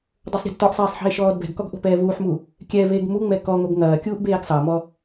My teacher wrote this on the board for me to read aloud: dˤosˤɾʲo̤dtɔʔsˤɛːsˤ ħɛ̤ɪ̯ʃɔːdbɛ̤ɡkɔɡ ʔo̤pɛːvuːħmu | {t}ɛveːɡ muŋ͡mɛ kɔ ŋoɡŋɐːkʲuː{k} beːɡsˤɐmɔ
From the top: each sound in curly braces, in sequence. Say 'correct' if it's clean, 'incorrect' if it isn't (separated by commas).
incorrect, incorrect